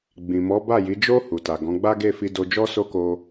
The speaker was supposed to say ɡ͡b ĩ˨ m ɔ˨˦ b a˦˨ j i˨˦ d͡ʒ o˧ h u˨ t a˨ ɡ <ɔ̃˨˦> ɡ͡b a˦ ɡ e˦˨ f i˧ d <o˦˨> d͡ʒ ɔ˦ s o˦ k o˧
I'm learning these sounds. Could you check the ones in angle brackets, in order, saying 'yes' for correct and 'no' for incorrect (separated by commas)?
yes, no